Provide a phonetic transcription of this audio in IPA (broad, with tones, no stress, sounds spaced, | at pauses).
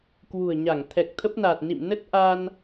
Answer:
k w ṳ˨˩ ə̯ ɲ a˧˩ ŋ t̪ʰ ɛ˨˩ k̚ t̪ʰ ə˦˥ p̚ n a˨˩ t̚ n ḭ˧˨ m n ə˦˥ t̚ ʔ a˧ n